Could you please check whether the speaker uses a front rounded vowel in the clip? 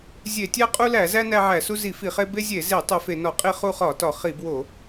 no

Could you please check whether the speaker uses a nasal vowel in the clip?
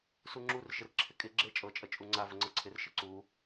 no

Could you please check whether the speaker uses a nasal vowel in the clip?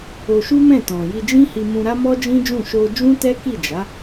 yes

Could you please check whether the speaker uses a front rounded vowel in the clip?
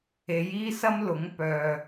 yes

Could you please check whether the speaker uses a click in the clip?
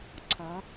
yes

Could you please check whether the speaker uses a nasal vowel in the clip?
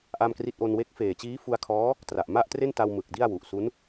no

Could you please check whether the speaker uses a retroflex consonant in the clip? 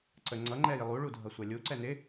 yes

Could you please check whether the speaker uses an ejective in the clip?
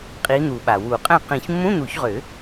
yes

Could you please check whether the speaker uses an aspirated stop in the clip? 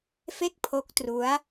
yes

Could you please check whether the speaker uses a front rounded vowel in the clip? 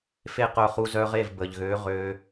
yes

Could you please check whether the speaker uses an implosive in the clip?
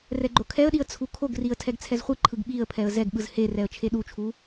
yes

